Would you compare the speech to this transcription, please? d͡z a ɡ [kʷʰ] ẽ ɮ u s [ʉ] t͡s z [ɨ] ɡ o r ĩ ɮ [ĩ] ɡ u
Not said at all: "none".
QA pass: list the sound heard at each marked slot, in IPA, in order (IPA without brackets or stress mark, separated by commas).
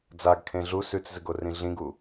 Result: kʰ, ʉ, ɨ, ĩ